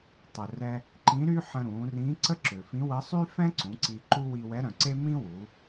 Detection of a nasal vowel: present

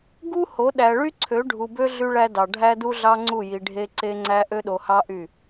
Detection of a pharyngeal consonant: absent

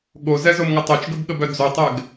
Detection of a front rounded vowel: present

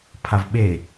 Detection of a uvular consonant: absent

